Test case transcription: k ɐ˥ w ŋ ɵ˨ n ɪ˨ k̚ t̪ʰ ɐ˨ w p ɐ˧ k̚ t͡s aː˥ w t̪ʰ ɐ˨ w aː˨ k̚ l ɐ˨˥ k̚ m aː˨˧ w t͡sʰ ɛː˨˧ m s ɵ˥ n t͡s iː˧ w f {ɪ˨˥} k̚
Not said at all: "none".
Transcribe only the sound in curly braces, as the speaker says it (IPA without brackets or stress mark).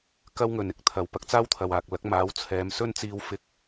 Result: ɪ˥